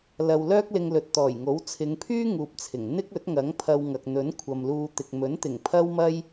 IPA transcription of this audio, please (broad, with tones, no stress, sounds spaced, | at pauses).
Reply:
l ɐ˧ w l œː˥ k̚ l ɪ˧ ŋ l ɵ˨ t̚ t̪ ɔː˨˩ j ŋ o˨˥ w t͡sʰ ɪ˨˧ ŋ pʰ yː˥ ŋ uː˧ p̚ t͡sʰ ɪ˨˩ ŋ n̪ ɪ˥ k̚ ɵ˨˥ t̚ ŋ ɐ˨˥ ŋ pʰ ɐ˧ w ŋ ɐ˨ k̚ n̪ ɵ˨˥ n kʷʰ ɐ˨ m l uː˧ t̪ ɪ˨ k̚ m ɵ˨˥ n t̪ ɪ˨˩ ŋ pʰ ɐ˥ w m ɐ˥ j